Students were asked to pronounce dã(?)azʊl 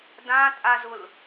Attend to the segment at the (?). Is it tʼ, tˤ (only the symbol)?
tʼ